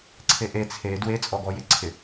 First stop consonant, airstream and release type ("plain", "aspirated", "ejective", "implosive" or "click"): click